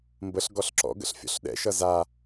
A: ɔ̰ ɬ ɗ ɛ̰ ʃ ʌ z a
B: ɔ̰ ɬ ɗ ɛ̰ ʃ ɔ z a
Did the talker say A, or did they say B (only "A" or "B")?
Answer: A